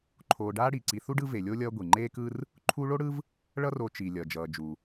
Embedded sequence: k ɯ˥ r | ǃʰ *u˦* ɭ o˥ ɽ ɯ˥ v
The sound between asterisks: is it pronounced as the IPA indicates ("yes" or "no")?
yes